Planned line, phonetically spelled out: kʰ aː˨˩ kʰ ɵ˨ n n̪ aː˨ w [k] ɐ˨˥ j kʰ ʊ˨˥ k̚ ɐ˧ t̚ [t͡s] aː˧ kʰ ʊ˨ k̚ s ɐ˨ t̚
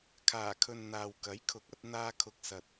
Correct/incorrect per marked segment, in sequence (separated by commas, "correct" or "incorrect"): correct, incorrect